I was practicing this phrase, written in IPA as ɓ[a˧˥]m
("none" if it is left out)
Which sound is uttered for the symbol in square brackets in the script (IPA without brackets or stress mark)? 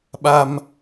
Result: a˧